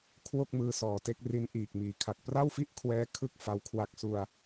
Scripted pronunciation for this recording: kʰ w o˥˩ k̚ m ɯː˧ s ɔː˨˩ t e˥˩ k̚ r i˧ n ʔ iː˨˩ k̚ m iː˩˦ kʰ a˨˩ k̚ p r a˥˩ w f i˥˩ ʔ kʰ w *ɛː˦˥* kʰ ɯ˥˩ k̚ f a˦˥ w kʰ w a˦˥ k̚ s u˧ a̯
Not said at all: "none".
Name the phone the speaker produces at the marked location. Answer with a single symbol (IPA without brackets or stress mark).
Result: ɛː˦˥